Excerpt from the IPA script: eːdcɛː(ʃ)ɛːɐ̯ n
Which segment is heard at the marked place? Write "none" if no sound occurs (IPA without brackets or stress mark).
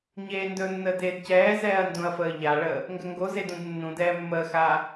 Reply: z